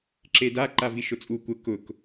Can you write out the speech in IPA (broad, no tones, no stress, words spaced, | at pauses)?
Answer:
ǁeda ǃaviʃʊt͡sʼu kʷə kʊk